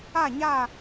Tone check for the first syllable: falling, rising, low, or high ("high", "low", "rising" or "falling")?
falling